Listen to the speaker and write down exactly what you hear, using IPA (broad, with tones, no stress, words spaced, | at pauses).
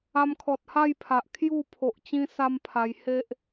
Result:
a˧mkʰɔ˨t̚ha˥˧jpʰa˨ʔ kʰju˥˧pʰo˨ʔ t͡ɕĩ˦sa˦mpʰa˧j he˦ʔ